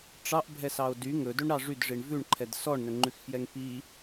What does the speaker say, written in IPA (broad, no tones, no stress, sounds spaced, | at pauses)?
ʈ͡ʂ ɑ ʔ bʱ ɛ s ɑ o̯ d y ŋ ɵ d ɵ ɳ ɾ ɑ ʐ y d ʐ i ɳ v ʉ ɳ ǃʰ ɛ d s ɔ ɳ n ɵ ŋ͡ǃ ʉ x f j ɛ ŋ p i